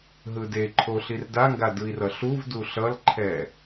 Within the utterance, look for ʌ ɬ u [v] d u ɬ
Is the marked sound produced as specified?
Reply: yes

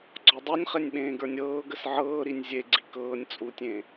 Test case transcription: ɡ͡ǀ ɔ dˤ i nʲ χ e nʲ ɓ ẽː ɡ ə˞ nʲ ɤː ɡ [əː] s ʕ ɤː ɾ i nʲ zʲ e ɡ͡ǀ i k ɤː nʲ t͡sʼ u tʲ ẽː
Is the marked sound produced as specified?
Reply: no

